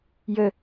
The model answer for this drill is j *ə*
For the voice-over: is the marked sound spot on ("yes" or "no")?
yes